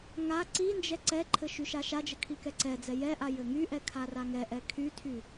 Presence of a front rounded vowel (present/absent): present